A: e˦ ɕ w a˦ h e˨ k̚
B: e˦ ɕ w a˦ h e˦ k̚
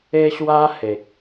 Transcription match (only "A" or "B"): A